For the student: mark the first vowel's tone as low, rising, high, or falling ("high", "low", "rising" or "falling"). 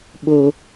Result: high